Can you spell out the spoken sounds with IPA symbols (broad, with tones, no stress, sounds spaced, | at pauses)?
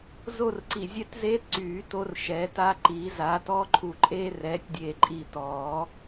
z o˥˧ r ǀ i˧˩ zʲ ɛ˥ t z eː˥ t ǀ yː˨˩˦ t o˧ r ʃ ɛ˨˥ t a˥ ǃ i˨˥ z a˨˥ t ɔː˥ ǃʰ u˧˩ ǃʼ eː˥ r ɛː˨˥ tʲ dʲ eː˧˩ ǃʼ i˧˩ t ɔː˨˩˦